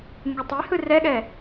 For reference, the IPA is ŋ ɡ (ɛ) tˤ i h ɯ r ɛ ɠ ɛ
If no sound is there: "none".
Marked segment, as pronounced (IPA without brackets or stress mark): ɛ